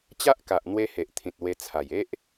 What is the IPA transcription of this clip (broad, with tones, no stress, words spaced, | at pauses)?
t͡ɕa˦ʔka˨ʔn̪we˧ he˨ʔt̪ʰĩ˨t̚ we˧t͡sʰa˨˩j e˦ʔ